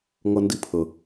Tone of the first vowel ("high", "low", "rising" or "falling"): high